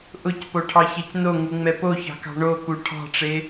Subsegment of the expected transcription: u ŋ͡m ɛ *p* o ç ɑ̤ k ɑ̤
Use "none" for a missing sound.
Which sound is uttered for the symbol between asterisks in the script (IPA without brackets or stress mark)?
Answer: p